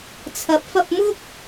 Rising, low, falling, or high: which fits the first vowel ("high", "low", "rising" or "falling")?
rising